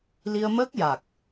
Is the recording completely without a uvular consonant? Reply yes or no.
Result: yes